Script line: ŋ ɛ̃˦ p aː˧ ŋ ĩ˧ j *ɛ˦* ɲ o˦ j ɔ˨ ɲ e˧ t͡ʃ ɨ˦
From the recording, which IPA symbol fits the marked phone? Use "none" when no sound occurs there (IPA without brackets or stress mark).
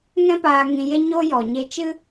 e˦